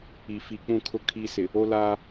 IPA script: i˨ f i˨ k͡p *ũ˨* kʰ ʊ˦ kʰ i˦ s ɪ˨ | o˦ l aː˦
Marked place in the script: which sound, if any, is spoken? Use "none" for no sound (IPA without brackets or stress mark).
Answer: ũ˦˨